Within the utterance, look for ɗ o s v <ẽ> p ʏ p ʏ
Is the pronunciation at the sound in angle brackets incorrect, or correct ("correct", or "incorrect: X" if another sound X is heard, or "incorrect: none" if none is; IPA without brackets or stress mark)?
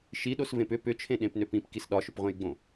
correct